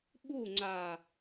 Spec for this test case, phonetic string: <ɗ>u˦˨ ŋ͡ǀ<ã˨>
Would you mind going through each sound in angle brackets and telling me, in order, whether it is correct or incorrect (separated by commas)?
incorrect, incorrect